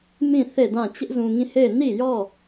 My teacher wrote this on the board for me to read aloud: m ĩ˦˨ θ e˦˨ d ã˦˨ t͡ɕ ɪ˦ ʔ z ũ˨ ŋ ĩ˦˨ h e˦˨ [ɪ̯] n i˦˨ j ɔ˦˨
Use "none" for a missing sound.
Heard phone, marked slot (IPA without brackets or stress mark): ɪ̯